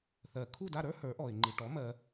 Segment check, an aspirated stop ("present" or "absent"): present